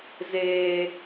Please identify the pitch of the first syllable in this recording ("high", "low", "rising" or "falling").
low